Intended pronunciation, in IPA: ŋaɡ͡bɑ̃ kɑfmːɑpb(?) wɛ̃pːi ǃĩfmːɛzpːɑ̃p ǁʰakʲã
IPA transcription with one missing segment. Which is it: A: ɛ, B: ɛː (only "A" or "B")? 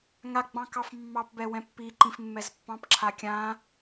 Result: A